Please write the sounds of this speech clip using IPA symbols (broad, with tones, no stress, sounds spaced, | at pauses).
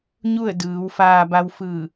ɲ u˥˨ ə̯ d ɯː˩˧ w f aː˧ b a˧ w f ɯː˧˩